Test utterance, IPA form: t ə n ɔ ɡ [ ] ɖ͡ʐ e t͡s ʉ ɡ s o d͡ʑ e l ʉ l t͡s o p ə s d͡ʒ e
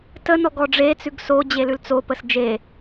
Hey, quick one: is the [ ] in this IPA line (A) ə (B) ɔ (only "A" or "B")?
B